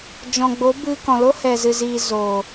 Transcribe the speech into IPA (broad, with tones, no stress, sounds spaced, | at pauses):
d͡ʒ ɔ̃˨ ɡ͡b o˨˦ b ɨ˧ k ɔ̃˨ l o˦ h ɛ˨ z ɨ˨ z iː˨ z oː˨